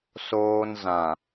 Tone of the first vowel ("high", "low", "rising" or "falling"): low